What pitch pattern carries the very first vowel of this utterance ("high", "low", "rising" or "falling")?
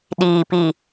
low